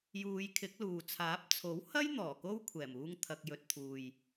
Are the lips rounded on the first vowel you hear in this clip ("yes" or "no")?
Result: yes